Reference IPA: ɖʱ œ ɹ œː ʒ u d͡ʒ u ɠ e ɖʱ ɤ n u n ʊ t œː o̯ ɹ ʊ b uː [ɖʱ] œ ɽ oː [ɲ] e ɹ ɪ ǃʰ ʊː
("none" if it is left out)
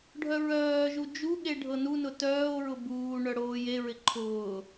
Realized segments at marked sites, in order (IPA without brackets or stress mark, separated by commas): ɳ, j